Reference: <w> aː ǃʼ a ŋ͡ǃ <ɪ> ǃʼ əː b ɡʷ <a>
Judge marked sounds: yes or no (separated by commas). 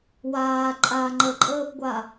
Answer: yes, no, yes